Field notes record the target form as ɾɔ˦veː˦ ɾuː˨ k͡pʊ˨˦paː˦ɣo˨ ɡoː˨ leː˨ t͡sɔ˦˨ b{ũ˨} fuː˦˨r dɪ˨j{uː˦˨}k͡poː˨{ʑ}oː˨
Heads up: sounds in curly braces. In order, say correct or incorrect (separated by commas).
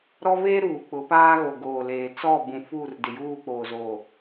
correct, correct, incorrect